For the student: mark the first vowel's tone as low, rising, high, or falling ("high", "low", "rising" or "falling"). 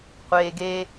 low